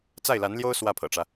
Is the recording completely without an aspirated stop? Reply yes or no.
no